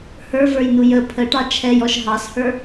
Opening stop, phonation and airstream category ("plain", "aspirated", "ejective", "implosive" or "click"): aspirated